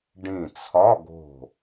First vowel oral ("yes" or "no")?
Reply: no